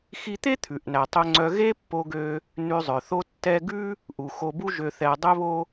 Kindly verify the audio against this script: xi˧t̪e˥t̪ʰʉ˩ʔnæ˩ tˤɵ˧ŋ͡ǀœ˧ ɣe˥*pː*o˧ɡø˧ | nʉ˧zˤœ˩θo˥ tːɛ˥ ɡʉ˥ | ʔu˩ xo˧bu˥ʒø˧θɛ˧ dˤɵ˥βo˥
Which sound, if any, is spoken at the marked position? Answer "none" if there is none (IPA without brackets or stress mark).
pː